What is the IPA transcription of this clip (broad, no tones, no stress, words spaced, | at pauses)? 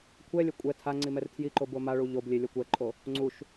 kʷʰɛlʲɛ kʷʼɛ tʰa ŋ͡ǀimɛrtʰjiǃo bomaɭu ʎoblʲe lʲɔkʷɛǃʼo | ŋ͡ǀuʃ